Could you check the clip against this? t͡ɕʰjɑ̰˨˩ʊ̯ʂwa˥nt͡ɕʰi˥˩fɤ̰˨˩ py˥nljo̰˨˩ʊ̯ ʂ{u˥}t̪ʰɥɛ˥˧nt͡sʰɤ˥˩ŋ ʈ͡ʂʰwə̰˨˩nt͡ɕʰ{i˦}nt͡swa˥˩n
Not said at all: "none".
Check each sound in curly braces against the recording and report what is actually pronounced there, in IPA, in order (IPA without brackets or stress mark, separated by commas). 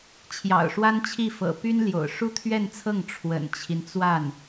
u˥, i˦